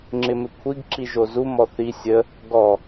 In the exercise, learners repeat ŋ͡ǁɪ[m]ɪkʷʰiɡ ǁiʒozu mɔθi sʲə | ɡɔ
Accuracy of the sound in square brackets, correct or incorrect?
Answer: correct